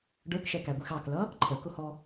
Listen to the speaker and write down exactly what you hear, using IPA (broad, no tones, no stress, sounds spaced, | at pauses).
ɖ ə˞ k ʃ ɛ k æ ɡʷ i x ɑ k l ʌ | ǃʰ ə k ʊ h ɔ